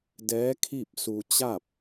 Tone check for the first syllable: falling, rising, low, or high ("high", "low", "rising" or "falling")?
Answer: rising